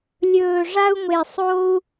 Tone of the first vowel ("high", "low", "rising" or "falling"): low